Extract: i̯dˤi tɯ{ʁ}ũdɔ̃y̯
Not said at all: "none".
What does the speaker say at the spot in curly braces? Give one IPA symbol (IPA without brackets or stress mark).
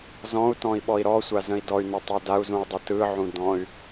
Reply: ʕ